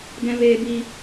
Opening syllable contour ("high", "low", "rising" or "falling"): high